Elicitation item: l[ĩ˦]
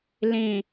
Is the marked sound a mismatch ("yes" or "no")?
yes